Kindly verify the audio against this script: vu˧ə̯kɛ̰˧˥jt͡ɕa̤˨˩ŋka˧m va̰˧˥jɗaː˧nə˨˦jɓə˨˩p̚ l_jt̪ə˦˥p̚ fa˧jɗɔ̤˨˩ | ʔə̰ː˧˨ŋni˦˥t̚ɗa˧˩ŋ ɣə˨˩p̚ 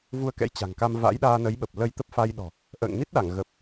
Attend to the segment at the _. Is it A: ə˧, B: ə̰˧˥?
A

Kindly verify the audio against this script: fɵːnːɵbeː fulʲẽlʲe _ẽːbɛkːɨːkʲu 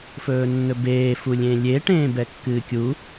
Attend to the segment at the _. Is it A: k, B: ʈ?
B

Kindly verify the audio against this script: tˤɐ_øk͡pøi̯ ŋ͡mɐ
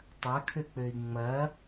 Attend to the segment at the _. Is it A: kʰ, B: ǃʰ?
A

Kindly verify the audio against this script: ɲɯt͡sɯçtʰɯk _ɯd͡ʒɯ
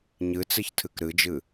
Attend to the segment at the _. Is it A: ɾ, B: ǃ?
A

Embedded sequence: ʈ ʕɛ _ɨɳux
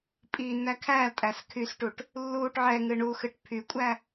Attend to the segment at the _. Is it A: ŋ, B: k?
A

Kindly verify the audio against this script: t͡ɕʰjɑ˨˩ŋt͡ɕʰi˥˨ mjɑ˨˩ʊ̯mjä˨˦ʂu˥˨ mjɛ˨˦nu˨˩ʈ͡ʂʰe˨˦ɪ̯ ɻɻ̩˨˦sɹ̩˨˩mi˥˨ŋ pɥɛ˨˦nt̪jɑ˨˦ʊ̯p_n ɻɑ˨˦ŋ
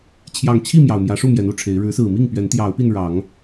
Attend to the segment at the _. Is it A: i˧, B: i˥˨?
A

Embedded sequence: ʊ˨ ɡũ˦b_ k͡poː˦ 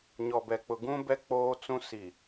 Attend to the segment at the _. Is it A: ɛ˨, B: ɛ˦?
B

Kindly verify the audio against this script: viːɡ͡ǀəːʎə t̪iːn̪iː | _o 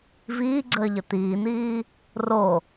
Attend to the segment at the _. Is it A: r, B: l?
A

